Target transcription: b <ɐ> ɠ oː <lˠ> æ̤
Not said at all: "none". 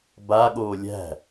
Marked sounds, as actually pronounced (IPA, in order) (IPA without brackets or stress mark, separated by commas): a, lʲ